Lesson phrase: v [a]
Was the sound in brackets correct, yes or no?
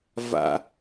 no